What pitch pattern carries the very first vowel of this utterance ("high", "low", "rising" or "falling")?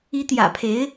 rising